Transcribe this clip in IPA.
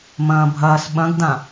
m ɐ̃ː bʱ ɐː s ɓ ɐ̃ ɡ d ã

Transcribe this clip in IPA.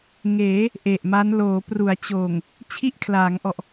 ŋ eː˩˦ | ʔ e˨˩ ʔ m a˦˥ n l oː˩˦ p r u˩˦ a̯ t͡ɕ oː˨˩ ŋ | t͡ɕʰ i˥˩ ʔ kʰ l aː˩˦ ŋ ʔ ɔ˨˩ ʔ

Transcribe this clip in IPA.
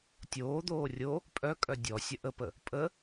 tʲ oː d̪ oː rʲ o | pʼ œ kʼ œ dʲ ɔ sʲ ə ʔ ə p ə | pʼ ə

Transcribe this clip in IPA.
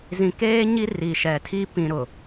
z ĩ˨ k eː˦ ɲ i˦ r i˨ ʃ ɛ˨ tʰ i˦ p ĩ˨ ɾ ʊ˨

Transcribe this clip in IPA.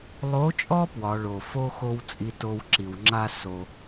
lˠ o˧˥ t͡ʃʼ ɔ˥ p w ɒ˩˧ ɭ o˩ f o˥ x o˥ w t͡sʼ i˧ t o˧ w ǁ i˩ w ŋ͡ǁ a˥ s o˩

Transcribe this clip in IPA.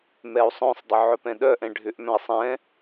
m ɛ u̯ sˤ œ̃ sˤ dˤ ʏ ʕ œ p ɛ̃ ɗ œ ʔ ɛ̃ ɖʱ ʏ ʔ m œ̃ i̯ sˤ ɛ̃

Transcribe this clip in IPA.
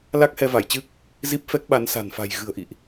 l a˦˥ k̚ h ɛ˧ v a˧˩ j t͡ɕ ɨ˦˥ k̚ | z i˦˥ p̚ f ɛ˦˥ k̚ ɓ a˨˦ n s a̤˨˩ n f a̤˨˩ j ɣ ɨ̤˨˩ ə̯ ʔ ḭ˧˨ ʔ

